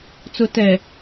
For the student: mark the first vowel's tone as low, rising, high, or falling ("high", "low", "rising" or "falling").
low